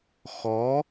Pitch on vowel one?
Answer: rising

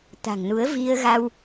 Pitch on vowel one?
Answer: low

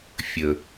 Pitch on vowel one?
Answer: low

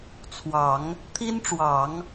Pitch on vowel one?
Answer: low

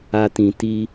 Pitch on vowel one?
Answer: high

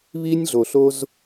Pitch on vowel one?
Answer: high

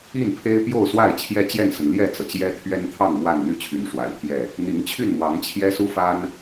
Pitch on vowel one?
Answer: falling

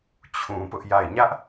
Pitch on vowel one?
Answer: low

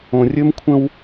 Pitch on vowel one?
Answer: low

